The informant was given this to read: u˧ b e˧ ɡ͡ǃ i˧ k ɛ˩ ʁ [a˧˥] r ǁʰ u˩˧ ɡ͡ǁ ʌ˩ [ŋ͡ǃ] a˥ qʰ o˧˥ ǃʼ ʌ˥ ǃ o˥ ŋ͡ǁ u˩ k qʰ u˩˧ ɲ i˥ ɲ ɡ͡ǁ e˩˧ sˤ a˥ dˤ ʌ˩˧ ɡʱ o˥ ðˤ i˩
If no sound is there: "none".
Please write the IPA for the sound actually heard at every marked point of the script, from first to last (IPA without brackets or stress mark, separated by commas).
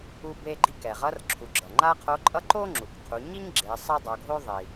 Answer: ʌ˧˥, ŋ͡ǃ